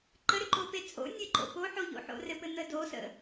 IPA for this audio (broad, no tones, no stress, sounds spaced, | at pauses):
ǃ ə ɾ ʏ ǃ o p e t͡sʼ o̰ nʲ ɘ ǃ o̰ p o ħ o ʎ o̰ ħ o̰ r ɘ p ɘ n̪ ə d o s ə̰